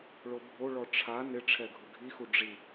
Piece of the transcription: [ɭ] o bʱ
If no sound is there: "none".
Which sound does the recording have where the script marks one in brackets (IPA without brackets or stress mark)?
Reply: ɭ